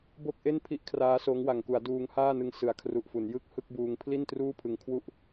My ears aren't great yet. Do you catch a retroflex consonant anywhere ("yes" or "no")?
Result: no